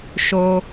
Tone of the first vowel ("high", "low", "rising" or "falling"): high